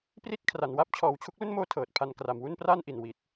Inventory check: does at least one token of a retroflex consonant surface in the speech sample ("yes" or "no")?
no